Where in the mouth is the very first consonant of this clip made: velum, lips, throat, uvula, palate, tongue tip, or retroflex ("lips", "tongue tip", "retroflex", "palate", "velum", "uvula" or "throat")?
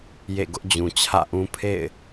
palate